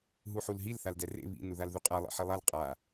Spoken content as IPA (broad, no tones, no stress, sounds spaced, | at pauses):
ɦ u ħ u l ɦ i l θ a l d ɛ r ḛ β ḭ n u ð a l ð u qʼ a lˠ ḭ ħ i lˠ a l qʼ a